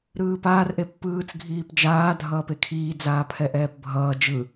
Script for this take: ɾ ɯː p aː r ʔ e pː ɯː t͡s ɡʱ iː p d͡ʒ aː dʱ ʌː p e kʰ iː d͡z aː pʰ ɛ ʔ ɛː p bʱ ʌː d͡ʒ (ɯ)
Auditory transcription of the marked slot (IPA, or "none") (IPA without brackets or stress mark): ɯ